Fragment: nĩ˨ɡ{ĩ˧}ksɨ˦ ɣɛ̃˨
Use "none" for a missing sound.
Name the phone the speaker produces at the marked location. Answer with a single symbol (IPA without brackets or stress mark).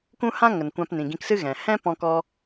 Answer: ĩ˧